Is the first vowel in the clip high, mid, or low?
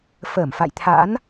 mid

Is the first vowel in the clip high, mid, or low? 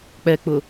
mid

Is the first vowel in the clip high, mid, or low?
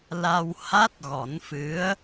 low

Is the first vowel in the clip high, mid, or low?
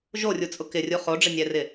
mid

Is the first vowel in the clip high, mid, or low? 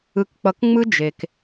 high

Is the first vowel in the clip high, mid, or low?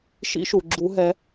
high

